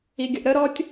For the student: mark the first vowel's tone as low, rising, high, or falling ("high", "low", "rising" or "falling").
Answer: low